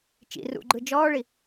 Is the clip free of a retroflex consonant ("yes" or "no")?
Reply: no